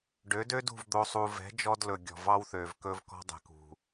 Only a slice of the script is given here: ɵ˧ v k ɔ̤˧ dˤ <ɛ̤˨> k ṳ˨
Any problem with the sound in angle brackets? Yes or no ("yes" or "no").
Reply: no